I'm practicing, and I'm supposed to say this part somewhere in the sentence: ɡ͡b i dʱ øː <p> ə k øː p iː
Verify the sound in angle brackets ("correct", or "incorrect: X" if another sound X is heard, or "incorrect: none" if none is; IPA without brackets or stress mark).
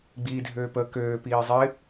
correct